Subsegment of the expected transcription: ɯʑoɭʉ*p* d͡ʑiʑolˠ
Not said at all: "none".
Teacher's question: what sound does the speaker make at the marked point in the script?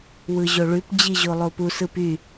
p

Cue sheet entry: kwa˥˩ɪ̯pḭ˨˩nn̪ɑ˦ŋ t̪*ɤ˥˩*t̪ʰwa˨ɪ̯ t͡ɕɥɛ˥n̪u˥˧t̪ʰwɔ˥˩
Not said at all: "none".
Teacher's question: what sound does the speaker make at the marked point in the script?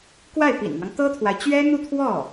ɤ˥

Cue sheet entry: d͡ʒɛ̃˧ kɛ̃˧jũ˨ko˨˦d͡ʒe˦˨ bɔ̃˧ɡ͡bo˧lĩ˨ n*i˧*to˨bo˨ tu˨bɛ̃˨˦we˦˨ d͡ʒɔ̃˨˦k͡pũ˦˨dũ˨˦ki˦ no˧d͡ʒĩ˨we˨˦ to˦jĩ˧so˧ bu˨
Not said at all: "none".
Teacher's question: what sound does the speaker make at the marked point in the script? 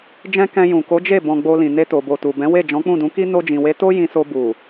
e˧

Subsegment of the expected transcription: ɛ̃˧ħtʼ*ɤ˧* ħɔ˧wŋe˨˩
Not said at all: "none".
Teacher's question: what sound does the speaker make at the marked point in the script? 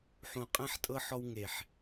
ɤ˧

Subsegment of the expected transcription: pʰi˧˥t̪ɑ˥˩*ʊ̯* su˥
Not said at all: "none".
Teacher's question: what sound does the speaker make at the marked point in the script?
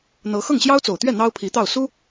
ʊ̯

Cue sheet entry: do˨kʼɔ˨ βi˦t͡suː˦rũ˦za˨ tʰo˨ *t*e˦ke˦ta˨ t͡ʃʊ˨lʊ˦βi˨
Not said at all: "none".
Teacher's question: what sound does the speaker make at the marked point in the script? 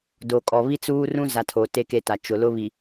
t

